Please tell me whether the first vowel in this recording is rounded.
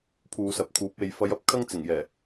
yes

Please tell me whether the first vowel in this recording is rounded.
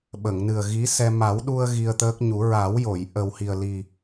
no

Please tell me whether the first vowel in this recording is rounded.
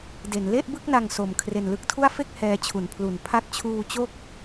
no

